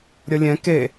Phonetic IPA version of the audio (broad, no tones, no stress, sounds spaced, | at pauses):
ɾʲ ʌ lʲ ɛ̃ k e